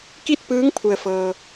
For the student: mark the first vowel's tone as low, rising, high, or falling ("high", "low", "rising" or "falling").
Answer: falling